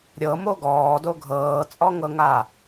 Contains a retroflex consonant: no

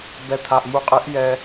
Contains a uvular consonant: yes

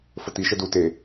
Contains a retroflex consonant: no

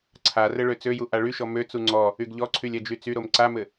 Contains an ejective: no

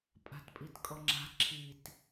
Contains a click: yes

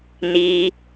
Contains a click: no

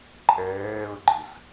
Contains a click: yes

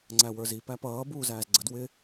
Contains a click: yes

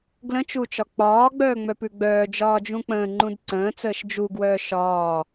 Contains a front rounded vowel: yes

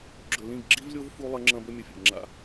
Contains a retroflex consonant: no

